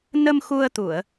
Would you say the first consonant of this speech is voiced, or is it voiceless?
voiced